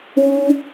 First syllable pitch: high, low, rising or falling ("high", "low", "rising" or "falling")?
high